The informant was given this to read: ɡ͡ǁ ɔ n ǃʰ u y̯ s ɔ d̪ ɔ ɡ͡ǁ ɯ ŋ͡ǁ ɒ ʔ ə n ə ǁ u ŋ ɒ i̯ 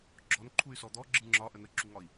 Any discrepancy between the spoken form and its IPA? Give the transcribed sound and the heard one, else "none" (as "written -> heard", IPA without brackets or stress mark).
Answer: none